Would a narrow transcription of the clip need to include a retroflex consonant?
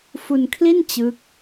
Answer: no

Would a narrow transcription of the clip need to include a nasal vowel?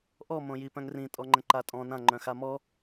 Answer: yes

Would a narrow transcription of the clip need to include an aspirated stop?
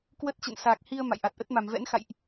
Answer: no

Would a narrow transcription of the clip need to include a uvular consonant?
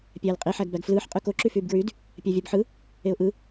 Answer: yes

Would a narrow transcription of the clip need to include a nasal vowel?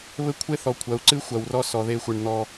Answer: no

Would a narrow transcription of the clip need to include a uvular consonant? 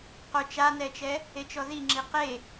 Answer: yes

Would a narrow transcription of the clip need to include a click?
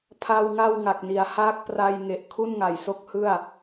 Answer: no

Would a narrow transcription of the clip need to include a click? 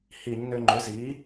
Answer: yes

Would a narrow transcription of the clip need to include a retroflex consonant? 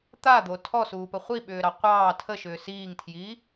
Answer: no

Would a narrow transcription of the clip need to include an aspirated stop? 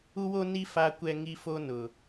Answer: no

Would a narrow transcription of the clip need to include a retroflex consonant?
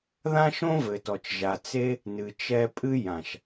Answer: no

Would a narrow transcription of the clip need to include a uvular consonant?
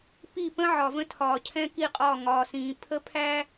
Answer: yes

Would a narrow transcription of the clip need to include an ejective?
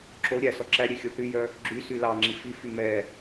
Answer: no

